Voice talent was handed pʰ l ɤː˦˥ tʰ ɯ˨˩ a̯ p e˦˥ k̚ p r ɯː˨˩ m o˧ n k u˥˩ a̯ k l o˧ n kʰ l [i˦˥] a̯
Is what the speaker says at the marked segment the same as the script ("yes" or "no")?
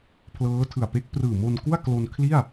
no